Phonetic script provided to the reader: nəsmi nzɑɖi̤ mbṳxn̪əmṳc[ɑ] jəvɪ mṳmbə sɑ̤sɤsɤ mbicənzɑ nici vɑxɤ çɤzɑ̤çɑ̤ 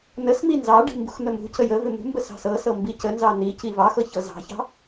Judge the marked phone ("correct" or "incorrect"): incorrect